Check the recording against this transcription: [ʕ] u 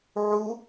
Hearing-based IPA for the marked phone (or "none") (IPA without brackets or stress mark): ʕ